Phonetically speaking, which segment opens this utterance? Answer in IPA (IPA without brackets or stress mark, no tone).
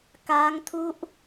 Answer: k